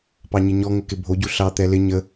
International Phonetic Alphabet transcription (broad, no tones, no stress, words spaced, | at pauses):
pɑɲɪɲɔ ŋəkɪbʱoɟu ɬɑ t̪ɛlɪ ɲə